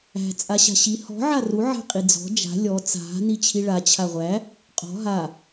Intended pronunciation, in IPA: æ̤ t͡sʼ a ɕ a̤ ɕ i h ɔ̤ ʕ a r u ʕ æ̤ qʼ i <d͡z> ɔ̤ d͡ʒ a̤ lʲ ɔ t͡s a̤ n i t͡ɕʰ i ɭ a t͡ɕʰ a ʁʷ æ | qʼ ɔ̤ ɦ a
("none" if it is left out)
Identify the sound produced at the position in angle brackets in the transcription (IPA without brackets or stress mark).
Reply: d͡z